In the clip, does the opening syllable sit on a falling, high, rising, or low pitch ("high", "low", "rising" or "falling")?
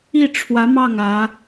falling